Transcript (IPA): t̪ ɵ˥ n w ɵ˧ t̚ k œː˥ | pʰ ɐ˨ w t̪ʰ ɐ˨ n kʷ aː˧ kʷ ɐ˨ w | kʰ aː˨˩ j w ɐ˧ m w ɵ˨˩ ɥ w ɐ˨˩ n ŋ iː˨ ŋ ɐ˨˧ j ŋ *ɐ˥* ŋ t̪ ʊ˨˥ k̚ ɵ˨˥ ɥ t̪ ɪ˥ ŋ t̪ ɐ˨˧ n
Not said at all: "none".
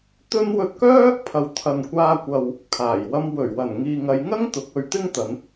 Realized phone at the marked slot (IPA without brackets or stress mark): ɐ˥